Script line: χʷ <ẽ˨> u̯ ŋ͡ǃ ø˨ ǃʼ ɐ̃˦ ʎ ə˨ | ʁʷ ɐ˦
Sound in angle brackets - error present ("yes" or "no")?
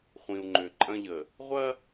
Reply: yes